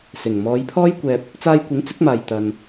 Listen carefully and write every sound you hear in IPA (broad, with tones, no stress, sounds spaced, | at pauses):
s ɪ˨˩ ŋ m ɔː˨˧ j pʰ ɔː˥ j kʷ ɛː˧ p̚ | t͡s aː˧ j kʷ ɪ˨˥ ŋ t͡s ɪ˨˥ k̚ m aː˨ j t̪ ɐ˧ n